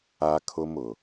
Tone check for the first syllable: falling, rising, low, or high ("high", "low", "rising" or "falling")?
high